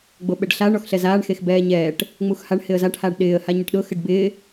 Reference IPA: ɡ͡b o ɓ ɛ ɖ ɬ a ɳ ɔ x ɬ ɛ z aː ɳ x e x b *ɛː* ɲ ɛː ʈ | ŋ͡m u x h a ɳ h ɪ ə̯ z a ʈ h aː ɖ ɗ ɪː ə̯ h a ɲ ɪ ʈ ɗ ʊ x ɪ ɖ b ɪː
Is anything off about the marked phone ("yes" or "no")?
no